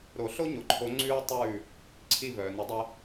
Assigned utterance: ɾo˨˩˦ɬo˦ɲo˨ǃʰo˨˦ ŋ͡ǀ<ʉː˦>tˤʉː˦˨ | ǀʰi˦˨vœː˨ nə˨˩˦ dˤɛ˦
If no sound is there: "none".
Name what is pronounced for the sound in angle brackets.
ʉː˦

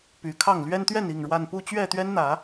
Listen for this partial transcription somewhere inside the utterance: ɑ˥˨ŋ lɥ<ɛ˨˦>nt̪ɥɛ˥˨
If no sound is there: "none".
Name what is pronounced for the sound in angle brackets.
ɛ˦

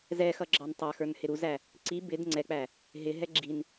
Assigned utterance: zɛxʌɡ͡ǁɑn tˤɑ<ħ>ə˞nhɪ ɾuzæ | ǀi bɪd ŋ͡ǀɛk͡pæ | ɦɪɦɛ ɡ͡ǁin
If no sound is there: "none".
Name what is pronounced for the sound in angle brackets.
x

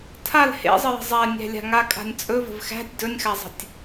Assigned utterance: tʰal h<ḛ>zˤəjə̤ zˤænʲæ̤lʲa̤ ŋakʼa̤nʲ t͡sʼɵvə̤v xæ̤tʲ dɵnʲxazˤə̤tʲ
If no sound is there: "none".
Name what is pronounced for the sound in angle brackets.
ḛ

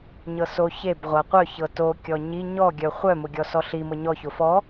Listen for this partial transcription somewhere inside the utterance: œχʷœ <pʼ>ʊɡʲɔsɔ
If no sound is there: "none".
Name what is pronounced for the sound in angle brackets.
m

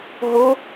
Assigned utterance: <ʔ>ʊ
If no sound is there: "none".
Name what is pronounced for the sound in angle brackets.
ɦ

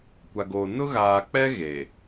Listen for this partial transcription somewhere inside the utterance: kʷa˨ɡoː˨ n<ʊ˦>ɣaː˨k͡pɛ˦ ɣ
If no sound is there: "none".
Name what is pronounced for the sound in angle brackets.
ʊ˦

